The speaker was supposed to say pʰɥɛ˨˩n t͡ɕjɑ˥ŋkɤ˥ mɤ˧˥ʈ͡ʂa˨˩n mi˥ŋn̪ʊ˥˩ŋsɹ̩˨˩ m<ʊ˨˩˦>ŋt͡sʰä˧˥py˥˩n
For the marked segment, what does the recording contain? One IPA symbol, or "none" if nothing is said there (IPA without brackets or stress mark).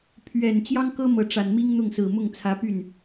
ʊ˥˩